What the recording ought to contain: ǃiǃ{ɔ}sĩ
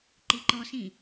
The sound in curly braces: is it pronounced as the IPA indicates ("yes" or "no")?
yes